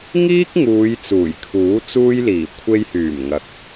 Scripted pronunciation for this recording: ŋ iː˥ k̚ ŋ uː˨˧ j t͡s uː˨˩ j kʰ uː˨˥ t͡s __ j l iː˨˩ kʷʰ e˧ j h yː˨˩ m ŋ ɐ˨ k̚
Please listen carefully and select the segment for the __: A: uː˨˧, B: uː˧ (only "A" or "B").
B